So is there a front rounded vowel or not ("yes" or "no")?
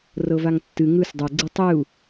no